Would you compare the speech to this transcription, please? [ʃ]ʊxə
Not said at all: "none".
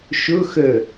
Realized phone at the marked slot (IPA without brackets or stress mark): ʃ